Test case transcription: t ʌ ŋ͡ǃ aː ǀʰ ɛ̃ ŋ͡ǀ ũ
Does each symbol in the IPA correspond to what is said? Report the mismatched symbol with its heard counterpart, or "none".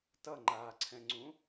none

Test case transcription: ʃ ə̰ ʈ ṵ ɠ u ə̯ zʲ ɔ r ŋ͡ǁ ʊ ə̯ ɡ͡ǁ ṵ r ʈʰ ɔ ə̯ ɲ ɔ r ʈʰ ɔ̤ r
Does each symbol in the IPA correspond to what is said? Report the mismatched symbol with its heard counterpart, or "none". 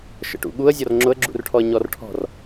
none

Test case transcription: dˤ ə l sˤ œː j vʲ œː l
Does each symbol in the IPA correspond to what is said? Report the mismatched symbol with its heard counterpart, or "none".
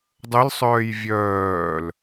none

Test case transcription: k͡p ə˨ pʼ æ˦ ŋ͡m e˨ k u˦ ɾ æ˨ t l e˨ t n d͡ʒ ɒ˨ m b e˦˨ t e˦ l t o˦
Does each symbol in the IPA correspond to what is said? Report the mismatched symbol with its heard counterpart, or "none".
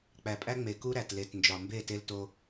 ə˨ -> æ˨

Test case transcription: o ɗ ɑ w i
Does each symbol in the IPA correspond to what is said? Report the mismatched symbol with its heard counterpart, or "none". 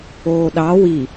o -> oː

